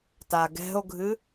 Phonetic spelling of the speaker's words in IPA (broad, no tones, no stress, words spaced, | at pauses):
taɡɛ̤o̯ɡʱɨ